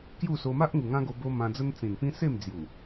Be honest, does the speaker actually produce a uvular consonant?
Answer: no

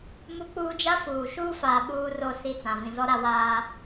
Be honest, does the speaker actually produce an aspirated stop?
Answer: no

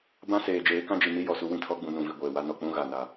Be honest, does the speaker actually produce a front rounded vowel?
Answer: no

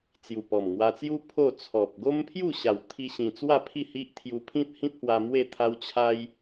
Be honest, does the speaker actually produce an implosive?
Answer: no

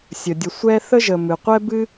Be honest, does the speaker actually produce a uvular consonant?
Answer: yes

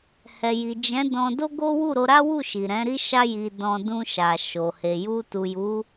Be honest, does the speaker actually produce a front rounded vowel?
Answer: no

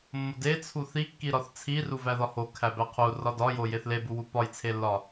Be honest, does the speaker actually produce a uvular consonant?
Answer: yes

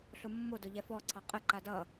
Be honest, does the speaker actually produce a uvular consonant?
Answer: yes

